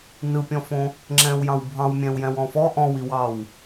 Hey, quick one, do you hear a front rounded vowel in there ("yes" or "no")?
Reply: no